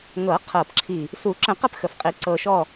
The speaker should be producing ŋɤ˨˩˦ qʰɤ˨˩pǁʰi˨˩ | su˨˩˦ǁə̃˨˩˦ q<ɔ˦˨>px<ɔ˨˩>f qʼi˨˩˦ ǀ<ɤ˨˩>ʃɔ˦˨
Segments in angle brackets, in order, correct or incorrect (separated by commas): incorrect, incorrect, correct